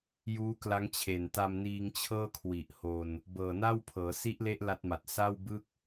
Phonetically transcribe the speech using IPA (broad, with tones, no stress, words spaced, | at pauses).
juː˦˥kla˦˥ŋt͡ɕʰe˨˩n ta˧mniː˧ŋt͡ɕʰɤː˥˩kʰwi˨˩ʔ ho˧n | bɤː˨˩na˥˩wpʰɤː˩˦ si˦˥ʔle˦˥ʔ la˦˥t̚ma˨˩t̚ sa˥˩wbɯ˥˩k̚